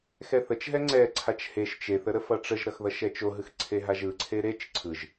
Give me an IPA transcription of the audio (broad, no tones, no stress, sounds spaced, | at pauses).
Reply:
x ɛ θ ə t͡ʃ ɦ ɛ ŋ͡ǀ ɛ ǀʰ a t͡ʃ h e ʃ t͡ʃ e θ ə ɾ ə f ʌ ʈ͡ʂ ə ʒ ɾ ʌ x ð ʌ ʃ ɛ t͡ʃ o ɦ ɯ x ǀʰ e ɦ a ʒ ɯ ǀʰ e ɾ e t͡ʃ ǀʰ ɯ ʒ